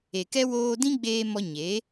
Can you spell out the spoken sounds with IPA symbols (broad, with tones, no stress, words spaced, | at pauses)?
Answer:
e˨kɛ˦ woː˧dĩ˦ ɡ͡beː˧mɔ˧ ɲe˨˦